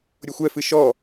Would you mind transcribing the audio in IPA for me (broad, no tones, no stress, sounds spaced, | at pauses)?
ɾʲ o xʷ ɛ f ɨ ʃ ɔ